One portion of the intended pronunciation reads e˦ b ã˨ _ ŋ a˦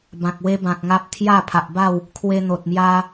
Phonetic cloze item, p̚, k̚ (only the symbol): k̚